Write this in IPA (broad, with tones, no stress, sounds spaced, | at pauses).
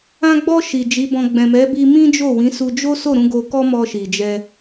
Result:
ã˧ ɡ͡b ɔ˧ ʃ i˨ d͡ʒ i˨˦ b ɔ̃˧ ɡ͡b ɛ̃˨ m ɛ˨˦ b i˧ m ĩ˦ d͡ʒ o˦˨ w ĩ˨˦ s u˧ d͡ʒ o˦ s o˦˨ ɾ ũ˧ ɡ o˧ k ɔ˦ m ɔ˧ ʃ i˨ d͡ʒ ɛ˧